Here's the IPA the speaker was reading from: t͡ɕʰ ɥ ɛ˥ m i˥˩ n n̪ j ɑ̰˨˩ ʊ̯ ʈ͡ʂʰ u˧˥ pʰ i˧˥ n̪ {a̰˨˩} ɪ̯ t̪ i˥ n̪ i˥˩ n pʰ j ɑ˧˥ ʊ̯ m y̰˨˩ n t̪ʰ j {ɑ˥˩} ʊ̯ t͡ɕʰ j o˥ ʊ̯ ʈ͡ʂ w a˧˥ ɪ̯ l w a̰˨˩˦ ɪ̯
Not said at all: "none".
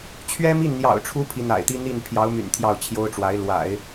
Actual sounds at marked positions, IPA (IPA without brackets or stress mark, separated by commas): a̰˨˩, ɑ˥˩